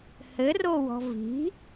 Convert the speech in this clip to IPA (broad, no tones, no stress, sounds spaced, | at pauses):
h ɘ r o w ɔ̤ v i̤